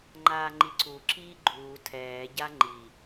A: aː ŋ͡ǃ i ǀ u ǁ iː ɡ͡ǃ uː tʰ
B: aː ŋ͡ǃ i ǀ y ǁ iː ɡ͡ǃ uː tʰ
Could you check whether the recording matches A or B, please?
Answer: A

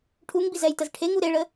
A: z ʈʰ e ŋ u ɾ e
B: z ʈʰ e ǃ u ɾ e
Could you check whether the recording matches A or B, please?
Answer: A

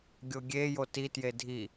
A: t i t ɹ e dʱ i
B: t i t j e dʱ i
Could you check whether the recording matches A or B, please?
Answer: B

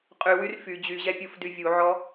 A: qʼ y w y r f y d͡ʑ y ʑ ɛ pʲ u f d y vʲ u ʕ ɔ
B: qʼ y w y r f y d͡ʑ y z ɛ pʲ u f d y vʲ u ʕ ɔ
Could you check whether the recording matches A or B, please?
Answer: A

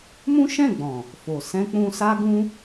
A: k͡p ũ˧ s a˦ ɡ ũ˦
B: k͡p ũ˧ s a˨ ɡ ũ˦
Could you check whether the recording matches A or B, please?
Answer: A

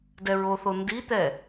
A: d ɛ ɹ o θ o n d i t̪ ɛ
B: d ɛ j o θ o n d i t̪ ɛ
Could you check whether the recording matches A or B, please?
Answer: A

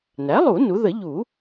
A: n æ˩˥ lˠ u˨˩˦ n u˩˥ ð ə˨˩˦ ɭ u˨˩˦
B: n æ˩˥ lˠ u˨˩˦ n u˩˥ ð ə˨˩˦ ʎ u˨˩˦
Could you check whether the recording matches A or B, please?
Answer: B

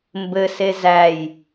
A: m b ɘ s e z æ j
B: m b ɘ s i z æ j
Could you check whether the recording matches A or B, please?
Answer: A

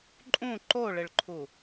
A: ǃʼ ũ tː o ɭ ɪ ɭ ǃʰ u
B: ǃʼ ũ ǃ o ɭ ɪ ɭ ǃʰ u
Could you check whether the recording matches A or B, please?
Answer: B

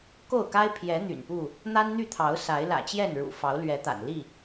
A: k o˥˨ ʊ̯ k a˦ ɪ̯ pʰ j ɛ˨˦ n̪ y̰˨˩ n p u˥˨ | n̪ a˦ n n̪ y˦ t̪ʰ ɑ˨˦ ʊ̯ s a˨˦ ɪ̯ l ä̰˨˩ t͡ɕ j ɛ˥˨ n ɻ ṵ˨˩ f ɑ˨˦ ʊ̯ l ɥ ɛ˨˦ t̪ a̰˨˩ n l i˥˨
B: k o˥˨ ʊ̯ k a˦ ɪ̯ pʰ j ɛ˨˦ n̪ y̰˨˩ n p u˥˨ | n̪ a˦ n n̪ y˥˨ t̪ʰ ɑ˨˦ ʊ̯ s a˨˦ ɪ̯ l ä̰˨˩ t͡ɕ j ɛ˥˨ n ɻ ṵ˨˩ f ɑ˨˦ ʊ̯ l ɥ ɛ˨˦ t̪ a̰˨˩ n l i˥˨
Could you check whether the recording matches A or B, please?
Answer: B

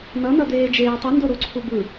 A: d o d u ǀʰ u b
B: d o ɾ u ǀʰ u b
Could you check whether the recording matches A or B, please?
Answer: B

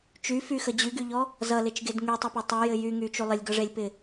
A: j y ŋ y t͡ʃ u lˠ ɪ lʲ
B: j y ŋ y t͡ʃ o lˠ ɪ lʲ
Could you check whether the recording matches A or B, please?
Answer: A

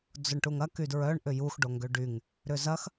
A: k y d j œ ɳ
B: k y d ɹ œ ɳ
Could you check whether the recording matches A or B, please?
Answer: B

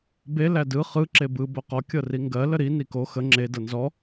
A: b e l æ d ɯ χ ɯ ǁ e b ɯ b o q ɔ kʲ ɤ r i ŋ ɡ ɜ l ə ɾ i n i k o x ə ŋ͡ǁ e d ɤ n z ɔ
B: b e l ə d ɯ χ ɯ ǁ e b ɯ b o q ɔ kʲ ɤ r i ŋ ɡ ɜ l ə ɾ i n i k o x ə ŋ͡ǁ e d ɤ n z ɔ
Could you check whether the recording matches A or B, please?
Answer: A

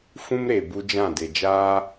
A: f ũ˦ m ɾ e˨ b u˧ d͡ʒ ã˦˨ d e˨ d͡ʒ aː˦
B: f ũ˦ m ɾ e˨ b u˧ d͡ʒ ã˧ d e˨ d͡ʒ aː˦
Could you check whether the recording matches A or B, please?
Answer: A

